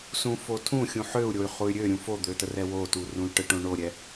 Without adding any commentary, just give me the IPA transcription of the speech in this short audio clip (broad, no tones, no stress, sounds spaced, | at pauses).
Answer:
s ũ f o tʰ ũ xʲ ũ ħ ø u̯ ɾʲ o y̯ χ u y̯ ɾʲ ø ɾʲ ũ f o d̪ ø t ə r ɛ w o t u r ũ y̯ ʈ ə ʈ õ ɳ o ɾʲ ɛ